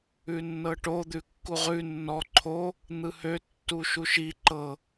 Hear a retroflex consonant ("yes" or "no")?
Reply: yes